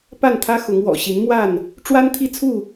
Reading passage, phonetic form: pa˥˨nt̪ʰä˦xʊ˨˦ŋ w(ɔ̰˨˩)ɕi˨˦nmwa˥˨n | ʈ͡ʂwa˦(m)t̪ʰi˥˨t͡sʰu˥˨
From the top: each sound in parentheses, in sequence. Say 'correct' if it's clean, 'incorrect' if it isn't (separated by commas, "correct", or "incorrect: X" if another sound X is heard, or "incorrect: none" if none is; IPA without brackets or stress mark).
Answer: correct, incorrect: n